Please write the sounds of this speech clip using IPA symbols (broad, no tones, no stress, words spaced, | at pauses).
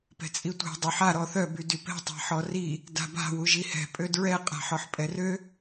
pɛ̤t͡sʼitʷɛ̤ dˤyħa ɾɔθœ bydypɛ̤ tˤa̤ħɔri | da̤ba̤ wuʒihɛ̤ pʼødɹɛ qʼa̤ħɔħpʼɛrø